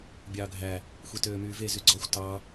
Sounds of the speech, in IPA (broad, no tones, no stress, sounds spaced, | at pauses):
bʲ ɑː ɡʱ æ | xʷ i t øː m yː v e z y ɡ͡ǀ ɔ xʷ t ɑ